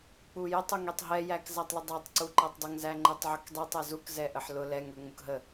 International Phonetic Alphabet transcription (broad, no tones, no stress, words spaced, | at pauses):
k͡pujətˤ uŋɛtˤɦɛ jækzætˤlʊdˤɑtˤ ǀuǃɛtˤdˤəŋ zæŋ͡ǃɛtˤʕʊkdˤɛ tˤɛzuk zɛʔəħlʊ lɛŋ ə˞ŋ͡mʊkɦə